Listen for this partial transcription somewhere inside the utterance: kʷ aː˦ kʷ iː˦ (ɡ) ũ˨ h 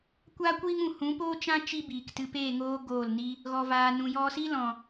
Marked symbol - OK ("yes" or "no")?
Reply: no